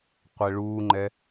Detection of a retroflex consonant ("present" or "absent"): present